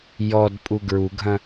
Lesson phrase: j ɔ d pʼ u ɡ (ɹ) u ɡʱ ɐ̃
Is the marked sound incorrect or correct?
correct